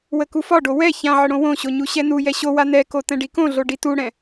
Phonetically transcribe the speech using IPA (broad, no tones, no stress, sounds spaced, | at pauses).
w ə k u f ɒ ɖ o w ɛ ç ã ʕ ə ɽ õ w õ ɕ o ɲ u ɕ ɛ n u j ɛ ɕ o w a n ɛ k o t ɛ̃ ɖ i k õ ɮ o ɖ i t u ɽ ɛ̃